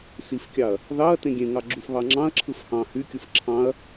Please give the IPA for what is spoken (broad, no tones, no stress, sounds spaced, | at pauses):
s i f kʲ ɑ ɐ̯ | ð ɑ ɐ̯ t ẽ ɡʲ ẽ ŋ ɑ ɡ͡ǁ u f β ɑ ŋ͡ǁ ɑ̃ ɐ̯ ǁʰ ɯ f h ɑ̃ h y kʲ ɯ f ǁʰ ɑ̃ ɐ̯